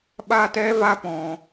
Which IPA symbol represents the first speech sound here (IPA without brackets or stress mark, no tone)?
ɓ